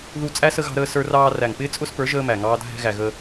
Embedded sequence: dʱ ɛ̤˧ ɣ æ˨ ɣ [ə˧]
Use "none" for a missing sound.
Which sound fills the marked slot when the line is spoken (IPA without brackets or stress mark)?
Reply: ə˧